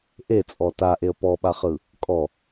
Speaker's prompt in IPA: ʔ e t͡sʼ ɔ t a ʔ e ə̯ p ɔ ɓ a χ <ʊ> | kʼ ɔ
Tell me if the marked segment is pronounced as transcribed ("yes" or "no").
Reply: no